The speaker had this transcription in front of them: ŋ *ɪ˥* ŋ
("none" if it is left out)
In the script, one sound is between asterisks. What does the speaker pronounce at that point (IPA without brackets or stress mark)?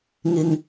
ɪ˨